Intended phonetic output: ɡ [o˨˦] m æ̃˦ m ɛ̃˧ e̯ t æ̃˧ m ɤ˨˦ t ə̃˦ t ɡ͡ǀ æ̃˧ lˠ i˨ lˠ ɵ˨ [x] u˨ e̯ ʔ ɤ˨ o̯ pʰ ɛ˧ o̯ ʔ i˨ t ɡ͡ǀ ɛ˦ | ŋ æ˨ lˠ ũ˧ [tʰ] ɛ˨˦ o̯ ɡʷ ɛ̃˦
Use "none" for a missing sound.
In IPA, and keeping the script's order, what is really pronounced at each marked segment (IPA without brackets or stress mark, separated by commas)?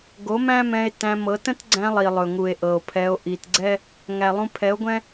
o˨˦, ŋ, pʰ